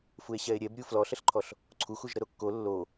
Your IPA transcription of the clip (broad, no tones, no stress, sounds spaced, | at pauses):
f u e̯ ɕ ɛ e̯ ɾʲ ɛ b ɾʲ u f l ɔ ɬ ə ɬ ǃʰ ɔ ɬ | ǀʰ u x u ʒ ɾ ə ɾ o kː o lː o